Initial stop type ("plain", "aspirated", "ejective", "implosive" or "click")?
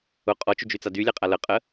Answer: ejective